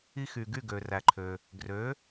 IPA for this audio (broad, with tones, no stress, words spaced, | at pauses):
i˧xy˩ɡy˥˩ ɡø˩ræ˩ǃʰø˩ | ɡrø˩˥